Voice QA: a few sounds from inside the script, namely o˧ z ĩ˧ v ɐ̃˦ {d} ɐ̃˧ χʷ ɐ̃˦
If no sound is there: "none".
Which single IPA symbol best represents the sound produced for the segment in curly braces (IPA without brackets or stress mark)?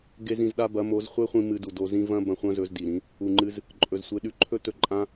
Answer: b